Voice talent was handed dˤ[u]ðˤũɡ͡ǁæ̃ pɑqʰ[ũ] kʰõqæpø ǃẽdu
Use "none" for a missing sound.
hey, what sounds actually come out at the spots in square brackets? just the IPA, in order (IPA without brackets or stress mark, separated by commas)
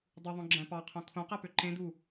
u, õ